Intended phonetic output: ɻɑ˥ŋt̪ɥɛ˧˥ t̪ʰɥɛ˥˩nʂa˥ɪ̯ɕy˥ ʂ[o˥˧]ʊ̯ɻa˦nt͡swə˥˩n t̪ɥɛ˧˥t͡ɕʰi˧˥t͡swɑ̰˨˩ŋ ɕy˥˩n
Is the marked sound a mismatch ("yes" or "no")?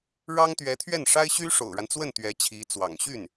yes